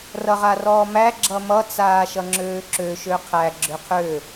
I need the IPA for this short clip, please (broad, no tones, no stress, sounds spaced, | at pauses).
r ʌ ʁ a r ɔː m æ ɡ͡ǁ ʌ m ʌ t͡s aː ʃ ʌ ŋ͡ǁ øː ǁ ø ʃ ø qʰ æ ɡ͡ǁ ø qʰ ø